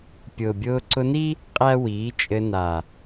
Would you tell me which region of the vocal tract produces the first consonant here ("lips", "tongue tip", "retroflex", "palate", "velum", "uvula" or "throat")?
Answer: lips